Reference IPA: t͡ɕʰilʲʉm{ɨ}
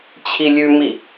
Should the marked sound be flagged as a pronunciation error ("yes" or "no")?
yes